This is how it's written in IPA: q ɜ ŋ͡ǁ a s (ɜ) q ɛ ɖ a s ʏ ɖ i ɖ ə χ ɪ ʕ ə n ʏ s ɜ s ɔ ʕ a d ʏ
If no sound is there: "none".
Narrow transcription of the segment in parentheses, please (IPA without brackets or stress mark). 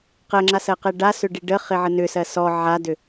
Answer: ɜ